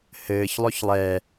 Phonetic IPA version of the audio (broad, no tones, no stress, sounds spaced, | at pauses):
h ɘː ç lˠ ɵ ç lˠ ɛ